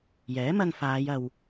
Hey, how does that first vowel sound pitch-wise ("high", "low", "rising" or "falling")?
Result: rising